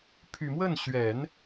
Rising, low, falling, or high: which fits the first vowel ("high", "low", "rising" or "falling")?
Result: low